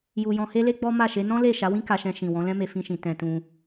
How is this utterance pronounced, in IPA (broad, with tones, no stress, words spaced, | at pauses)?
ju˧ jɔ̃˧he˦le˦ ɡ͡bɔ˦ ma˦˨ʃe˨˦ nɔ̃˦le˦˨ ʃa˨˦wĩ˦ka˧ʃɛ̃˧ ʃĩ˨ wɔ̃˨˦lɛ̃˦me˧ fĩ˧ʃĩ˨ tɛ̃˧tũ˧